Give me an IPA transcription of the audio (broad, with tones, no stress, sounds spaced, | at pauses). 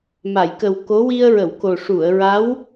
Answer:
m a˨˩˨ j k ə˨˩ w k o˧˥ w i˧ ə̯ ɹ ə˨˩˨ w k o˨˩ ʂ u˨˩˨ ə̯ ɹ a˧˥ w